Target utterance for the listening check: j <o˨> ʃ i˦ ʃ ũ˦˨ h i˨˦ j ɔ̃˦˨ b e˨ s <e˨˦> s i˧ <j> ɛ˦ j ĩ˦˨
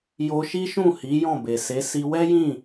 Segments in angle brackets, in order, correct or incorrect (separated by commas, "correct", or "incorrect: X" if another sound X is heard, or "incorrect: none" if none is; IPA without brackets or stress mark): incorrect: o˧, correct, incorrect: w